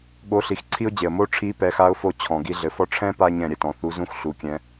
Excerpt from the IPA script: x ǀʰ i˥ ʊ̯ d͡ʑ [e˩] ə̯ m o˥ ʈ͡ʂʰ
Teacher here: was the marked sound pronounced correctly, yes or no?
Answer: yes